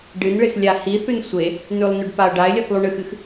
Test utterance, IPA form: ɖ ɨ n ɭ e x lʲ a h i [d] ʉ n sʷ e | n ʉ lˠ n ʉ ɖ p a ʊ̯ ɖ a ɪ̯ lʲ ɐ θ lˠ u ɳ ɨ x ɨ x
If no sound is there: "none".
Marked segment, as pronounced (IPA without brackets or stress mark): θ